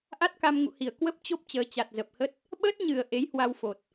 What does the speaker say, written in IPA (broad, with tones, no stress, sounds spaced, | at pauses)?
ʔ a˦˥ t̚ k a˧ m ŋ ṵ˧˨ h i˧˩ ə̯ k w ə˦˥ p̚ t͡ɕ o˦˥ p̚ t͡ɕ əː˨˦ t͡ɕ a˨˩ t̚ z ə˨˩ p̚ h ə˦˥ t̚ | ɓ əː˦˥ t̚ ɲ ɨ˨˩ ə̯ ʔ e˨˦ j h w a˧ w f o˨˩ t̚